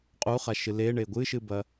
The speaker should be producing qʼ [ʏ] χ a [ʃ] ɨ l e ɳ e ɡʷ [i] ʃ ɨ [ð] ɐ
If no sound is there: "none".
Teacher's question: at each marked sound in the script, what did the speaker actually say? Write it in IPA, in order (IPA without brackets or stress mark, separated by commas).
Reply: u, ʃ, ɨ, b